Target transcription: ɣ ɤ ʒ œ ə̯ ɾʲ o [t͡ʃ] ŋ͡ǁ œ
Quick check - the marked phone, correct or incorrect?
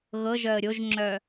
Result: incorrect